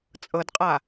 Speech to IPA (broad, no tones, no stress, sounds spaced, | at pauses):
t͡sʼ ɤ d qʼ a